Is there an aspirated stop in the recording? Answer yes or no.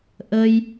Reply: no